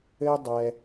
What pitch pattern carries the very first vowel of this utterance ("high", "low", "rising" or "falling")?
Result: high